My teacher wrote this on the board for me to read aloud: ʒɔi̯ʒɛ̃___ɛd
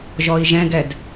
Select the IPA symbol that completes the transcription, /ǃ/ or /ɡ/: ɡ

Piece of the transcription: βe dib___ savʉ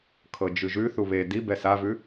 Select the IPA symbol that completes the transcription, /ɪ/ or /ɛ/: ɛ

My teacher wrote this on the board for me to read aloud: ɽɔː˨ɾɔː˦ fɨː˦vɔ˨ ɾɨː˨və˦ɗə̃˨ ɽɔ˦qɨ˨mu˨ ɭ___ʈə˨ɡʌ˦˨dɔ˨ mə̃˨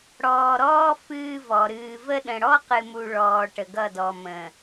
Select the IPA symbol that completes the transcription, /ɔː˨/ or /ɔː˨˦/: ɔː˨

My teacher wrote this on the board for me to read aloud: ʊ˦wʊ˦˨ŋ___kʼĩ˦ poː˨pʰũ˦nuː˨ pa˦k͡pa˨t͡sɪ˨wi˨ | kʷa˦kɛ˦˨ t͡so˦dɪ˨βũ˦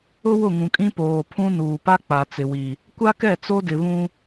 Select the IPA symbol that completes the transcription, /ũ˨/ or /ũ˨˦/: ũ˨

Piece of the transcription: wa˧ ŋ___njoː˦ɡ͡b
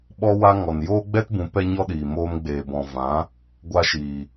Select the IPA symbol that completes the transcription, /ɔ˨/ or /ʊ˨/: ɔ˨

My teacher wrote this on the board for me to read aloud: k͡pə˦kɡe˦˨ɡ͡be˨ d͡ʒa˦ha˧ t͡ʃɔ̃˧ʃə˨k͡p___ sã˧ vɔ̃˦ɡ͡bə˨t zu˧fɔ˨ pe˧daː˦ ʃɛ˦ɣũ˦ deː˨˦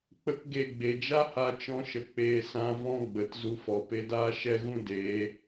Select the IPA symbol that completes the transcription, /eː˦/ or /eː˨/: eː˨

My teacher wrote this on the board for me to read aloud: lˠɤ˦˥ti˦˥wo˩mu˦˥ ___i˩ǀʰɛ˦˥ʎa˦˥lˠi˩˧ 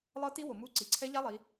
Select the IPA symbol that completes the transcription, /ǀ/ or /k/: ǀ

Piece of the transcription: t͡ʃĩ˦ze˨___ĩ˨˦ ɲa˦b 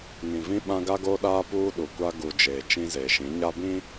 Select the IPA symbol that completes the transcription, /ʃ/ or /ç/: ʃ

